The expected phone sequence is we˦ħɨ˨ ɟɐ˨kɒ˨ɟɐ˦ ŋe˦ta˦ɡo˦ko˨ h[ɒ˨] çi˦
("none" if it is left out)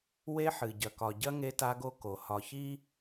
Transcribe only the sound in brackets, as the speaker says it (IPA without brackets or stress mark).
ɒ˨